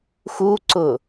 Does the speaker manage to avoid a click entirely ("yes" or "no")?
no